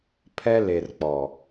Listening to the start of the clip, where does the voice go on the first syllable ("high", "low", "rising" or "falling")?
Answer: high